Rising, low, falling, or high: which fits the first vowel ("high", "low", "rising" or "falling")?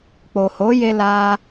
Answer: low